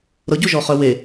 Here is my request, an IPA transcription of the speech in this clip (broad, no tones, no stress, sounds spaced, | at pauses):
ɾ ɤ ɟ u ʒ ɔ χ œ w e